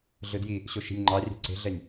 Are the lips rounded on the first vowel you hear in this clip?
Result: no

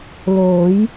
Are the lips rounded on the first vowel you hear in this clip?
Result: yes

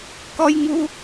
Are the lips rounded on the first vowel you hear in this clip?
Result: yes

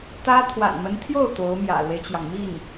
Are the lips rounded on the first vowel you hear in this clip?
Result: no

